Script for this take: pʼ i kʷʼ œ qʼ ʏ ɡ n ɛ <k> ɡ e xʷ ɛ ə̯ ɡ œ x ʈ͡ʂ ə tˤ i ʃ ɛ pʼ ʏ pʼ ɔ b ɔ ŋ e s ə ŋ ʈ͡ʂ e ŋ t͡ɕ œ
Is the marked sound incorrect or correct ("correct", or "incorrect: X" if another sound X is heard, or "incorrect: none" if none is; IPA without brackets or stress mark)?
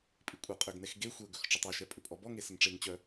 incorrect: x